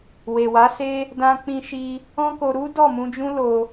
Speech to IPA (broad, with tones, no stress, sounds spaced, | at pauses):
w e˨ w a˨˦ s e˦ | d ã˧ k͡p ĩ˧ ʃ i˧ | ɔ̃˦ k o˧ ɾ u˦ d ɔ˦˨ m ũ˧ d͡ʒ ũ˦ l o˧